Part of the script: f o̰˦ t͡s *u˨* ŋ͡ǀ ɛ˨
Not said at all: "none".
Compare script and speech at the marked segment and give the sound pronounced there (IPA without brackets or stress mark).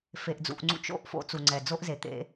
u˨